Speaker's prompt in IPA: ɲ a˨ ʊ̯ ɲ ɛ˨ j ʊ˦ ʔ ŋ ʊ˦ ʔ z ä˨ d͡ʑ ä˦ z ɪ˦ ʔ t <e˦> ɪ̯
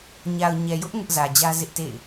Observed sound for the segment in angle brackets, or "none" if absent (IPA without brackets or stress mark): ḛ˦˨